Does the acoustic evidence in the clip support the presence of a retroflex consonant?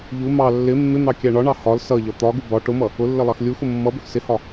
yes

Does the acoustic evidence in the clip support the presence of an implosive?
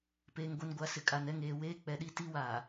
yes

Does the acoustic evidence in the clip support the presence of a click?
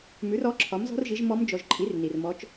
yes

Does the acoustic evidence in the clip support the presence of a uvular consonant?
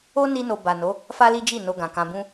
no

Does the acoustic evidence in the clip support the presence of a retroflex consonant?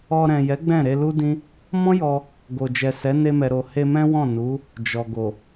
no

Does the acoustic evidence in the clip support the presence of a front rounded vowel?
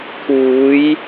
no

